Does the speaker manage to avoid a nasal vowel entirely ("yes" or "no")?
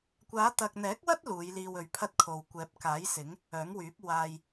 yes